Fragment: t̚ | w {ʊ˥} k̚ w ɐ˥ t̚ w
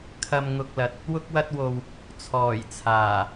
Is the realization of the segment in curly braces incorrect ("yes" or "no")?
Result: no